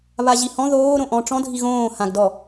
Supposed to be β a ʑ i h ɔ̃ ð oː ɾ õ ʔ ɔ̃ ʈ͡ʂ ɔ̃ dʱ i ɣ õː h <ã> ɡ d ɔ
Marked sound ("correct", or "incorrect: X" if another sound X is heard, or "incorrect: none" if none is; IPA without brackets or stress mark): correct